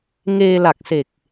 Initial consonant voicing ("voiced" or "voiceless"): voiced